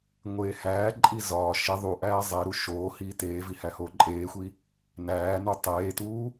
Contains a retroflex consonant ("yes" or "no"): no